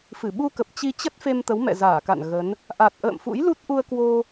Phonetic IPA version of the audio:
f ɨ˧˩ ɓ u˧ k ə˨˩ p̚ t͡ɕ i˧ t͡ɕ ə˦˥ t̚ f e˧ m t̪ ə˨˦ w m ɛ̰˧˨ z aː˧˩ k a̰˧˨ n ɣ ə˨˦ n | ʔ a˨˩ t̚ ʔ ə̰ː˧˨ m f ṵ˧˥ j l u˦˥ t̚ ʔ u˧ ə̯ k w o˧

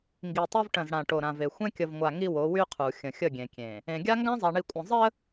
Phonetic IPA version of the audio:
ŋ ɡ i˨ tˤ o˦ v ʈ ə̃˨ z ɽ ã˨ ʈ o˨ ɾ ã˨ v e˨ xʷ ẽ˦ kʲ ə˨ v ŋʷ a˨ ŋ i˦ w o˨˦ w y˦ qʰ u˨ xʲ ə̃˨ xʲ ə˦˨ ɡʲ ẽ˨ kʲ ẽ˨ | ẽ˨ ɡʲ a˦ ŋ ɡ ã˦ zˤ a˨ ɳ i˨ kʷʼ ə̃˨ zˤ ə˦

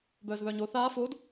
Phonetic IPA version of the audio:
b œː z β œː ɲ o θ aː f o d

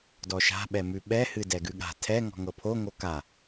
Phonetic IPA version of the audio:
d ɔ ʃ a̤ ɓ ɛ m ʉ ɓ ɛ h ɨ d ɛ ɡ ʉ ɠ a̤ tʰ ɛ ŋ ɔ̤ ŋ ɤ pʰ o ŋ o k a

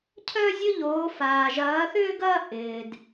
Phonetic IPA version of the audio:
cʰ œ˥ zʲ ʊ˥ ʎ oː˧˥ f aː˧ ʒ ɐː˧˥ θ ʏː˥ ɡ ɐː˥ ʔ ɪː˧ d

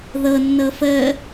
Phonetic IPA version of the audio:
ð ɤ nː ɤ f ə

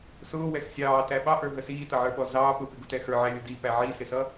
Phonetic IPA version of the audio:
s ʊː w ɛ x sʲ ɑː t æ ɓ ɑ ʔ ə˞ ɦ ə s iː t ʌ ʕ ə˞ ɓ ɔ z ɑː p ʊ p ɪ ɡ ʊ t ɛ x ə˞ ʕ æ lʲ ʊ d i p æ ʕ i s ɪ s ʌ

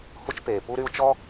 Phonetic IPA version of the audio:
h u˧ t͡ʃ p eː˩ p u˧ ɾ y˧ u̯ t͡ʃ ɔ˧

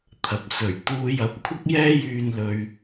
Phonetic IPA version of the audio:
t̪ʰ ɐ˨ p̚ s ɵ˨˩ ɥ t̪ uː˧ j ɐ˨˥ p̚ kʷʰ ɐ˥ k̚ j ɛː˥ j yː˧ n l ɵ˧ ɥ

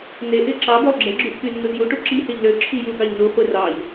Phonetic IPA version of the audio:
n e ʔ e ǁ ɑ b ø lˠ ɡ͡ǁ e ɡ͡ǁ y ʔ k y nː u z j u ʈ u ǁ i h e ʎ l ø ǁʰ i j u ɡ ɑ ʎ n u χʷ e r ɑ ʎ

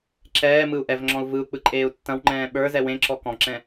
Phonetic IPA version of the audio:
ǁ ɛː m ɯ u̯ ʔ ɛ v ŋ͡ǁ ɔ̃ u̯ v ɯ u̯ k͡p ɯ ǃʼ eː u̯ tː ɐ̃ w ŋ͡ǃ ɛ̃ː ɓ ə˞ z ɛ w ẽ ǁ ɔ k ɔ̃ ǁ ɛ̃

